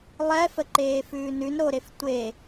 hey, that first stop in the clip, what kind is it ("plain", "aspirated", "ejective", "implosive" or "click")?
click